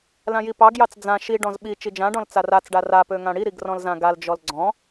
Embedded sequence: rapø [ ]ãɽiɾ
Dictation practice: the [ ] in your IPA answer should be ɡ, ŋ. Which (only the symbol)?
ŋ